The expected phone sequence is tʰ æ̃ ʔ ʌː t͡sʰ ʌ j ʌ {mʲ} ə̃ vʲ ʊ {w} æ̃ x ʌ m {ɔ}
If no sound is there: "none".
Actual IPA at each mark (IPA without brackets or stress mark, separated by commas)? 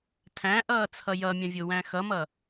mʲ, w, ʌ